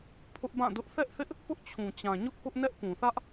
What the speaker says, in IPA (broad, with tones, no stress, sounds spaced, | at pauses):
pʰ ʊ˦ ʔ b ã˦˨ d ʊ˦ ʔ θ ɛ˦ ʔ θ ɪ˦ ʔ | p ʊ˦ ʔ t͡ɕʰ ũ˨ t͡ɕ ã˨ ɲ ʊ˦ ʔ k ʊ˦ ʔ n ɛ˦ ʔ p ũ˨ θ ä˦ ʔ